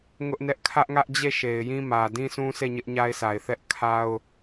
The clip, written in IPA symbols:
ŋ ʊ˦ ʔ n ɛ˦ ʔ kʰ ä˦ ʔ ŋ ä˦ ʔ d͡ʑ e˦˨ ʃ e˨ ɪ̯ j ĩ˦ m ä˨ d ĩ˦ s ũ˦ sʰ e˦˨ ɲ ɪ˦ ʔ ɲ a˦ ɪ̯ s a˨ ɪ̯ θ ɛ˦ ʔ kʰ a˦ ʊ̯

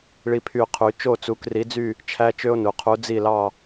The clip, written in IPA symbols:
ɭ i˥ pʰ y˥˧ qʰ y˧˥ t͡ʃ o˥˧ t͡s u˧˥ k r i˧˥ d͡z y˥˧ | t͡ʃʰ æ˥ t͡ʃ ø˥ o̯ n u˩˧˩ qʰ u˧˥ d͡z i˥˧ l ɑ˥˧

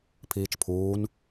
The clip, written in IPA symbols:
pʰ iː t͡ʃ pʰ uː n

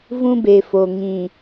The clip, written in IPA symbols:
v ũ˦ b e˨ f o˨ ŋ ĩ˨

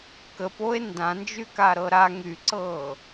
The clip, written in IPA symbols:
k ə p o e̯ n d ã n d͡ʒ y k a ɾ ɤ ɾ a ŋ y ǀ ɤː

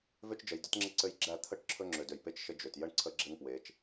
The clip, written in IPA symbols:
v ø˦ t͡ʃ d͡ʒ ə˨ j d ə˦ t ŋ͡ǁ ɘ˦ ǀ ɘ˦ j ɡ͡ǁ æ˦˨ t̪ʰ ə˦ ʈ ǁʰ ɵ˦ ŋ͡ǁ ø˨ d ø˨ j p e˦ t͡ʃ ʃ ə˦ d͡ʒ ø˨ t j ə˦ ɳ ǀʰ ə˦ ɡ͡ǁ ɘ˦ ŋ p w e˨˦ t͡ʃ

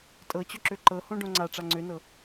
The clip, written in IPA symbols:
tʼ ɤ t͡ɕ ɵ ǁ ø ǃ ɤ h õ ɖ õ ŋ͡ǀ a ʈ͡ʂ a ŋ͡ǀ ø n ɤ

